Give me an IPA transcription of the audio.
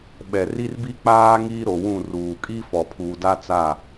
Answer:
ɓ ɛ˨ r i˦ r b i˦ k͡p aː˦ ŋ iː˦ ɾ o˨ w ũ˦˨ r uː˨ kʼ i˦ f ɔ˨ pʰ uː˨ d a˦ t͡s a˦˨

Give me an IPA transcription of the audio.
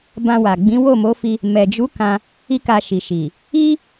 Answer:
b ã˧ w a˨ ɡ͡b ĩ˨˦ w o˦˨ m o˨˦ f i˧ | m ɛ˨ d͡ʒ u˨˦ k ã˧ | i˦ k a˧ ʃ i˨ ʃ i˨ | i˦

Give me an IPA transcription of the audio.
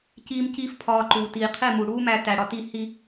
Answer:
c iː˦ m c iː˦ f pʰ ɒː˧ ǃ uː˨ t iː˨ qʰ e˦˨ m u˨ ɽ uː˦ m æ˧ t æ˨ ɽ ɒ˧ t i˦˨ h i˦

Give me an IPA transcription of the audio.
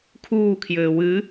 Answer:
kʰ uː kʰ j ɘː w ɨ

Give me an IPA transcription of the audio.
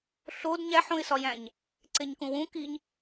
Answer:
ɬ o d ɲ æ ħ õ ɪ̯ s ɒ j æ̃ ɲ | ǀ e ɲ k ũ w ũ k i ɲ

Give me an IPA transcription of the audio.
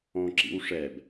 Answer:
ɔ̃ ǁ ḭ w ʂ ɛ b

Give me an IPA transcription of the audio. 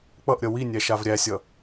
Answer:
k͡p ʌ ʔ ɾʲ ʌ w i nʲ æ ʃ a v ɾʲ æ sʲ ʌ

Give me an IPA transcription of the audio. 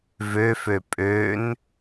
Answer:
v ø f ø pʼ ø n

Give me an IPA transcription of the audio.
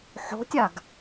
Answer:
ħ o̤ tʲ a ɡ

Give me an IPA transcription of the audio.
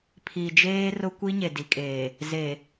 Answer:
pʰ i˨ d͡ʒ eː˦ r ʊ˦ kʷ i˦ ɲ e˨ d i˨ kʼ eː˨ | z e˨

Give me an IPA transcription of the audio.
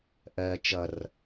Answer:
ʔ ɜ t͡ʃ ʌ r

